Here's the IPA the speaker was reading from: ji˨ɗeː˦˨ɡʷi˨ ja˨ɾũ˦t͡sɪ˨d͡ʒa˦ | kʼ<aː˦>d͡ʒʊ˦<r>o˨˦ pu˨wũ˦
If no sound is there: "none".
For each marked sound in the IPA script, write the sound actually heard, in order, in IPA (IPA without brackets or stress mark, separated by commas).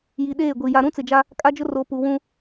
a˦, r